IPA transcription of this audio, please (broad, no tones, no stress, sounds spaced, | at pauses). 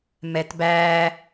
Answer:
m ɛ t b æ